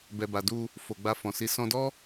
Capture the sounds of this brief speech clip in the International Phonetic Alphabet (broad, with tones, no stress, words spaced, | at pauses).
bɛ˨ba˨du˧ | fo˨ɡ͡ba˧fɔ̃˨si˨˦ sɔ̃˧dɔ˦